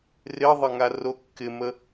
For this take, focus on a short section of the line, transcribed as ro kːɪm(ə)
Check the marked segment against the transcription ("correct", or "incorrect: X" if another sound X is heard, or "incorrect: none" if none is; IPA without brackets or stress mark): correct